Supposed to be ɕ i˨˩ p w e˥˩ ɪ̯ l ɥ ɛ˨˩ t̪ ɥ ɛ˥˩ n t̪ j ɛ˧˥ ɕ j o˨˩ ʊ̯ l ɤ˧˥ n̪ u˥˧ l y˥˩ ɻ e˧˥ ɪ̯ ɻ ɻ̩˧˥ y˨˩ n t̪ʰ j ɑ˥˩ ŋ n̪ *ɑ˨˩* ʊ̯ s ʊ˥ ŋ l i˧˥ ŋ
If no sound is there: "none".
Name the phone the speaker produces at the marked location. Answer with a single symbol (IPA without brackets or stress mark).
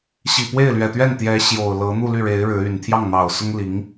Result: ɑ˨˩